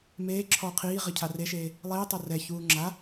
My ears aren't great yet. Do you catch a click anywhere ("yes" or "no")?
yes